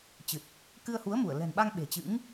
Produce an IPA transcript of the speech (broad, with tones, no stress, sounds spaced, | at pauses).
t͡ɕ ɨ˨˩ t̚ | k ɨ˧ ə̯ h u˨˦ ə̯ m u˧˩ ə̯ l ɛ̤˨˩ n ɓ a˧ ŋ ɓ e̤˨˩ t͡ɕ ɨ̰˧˥ ŋ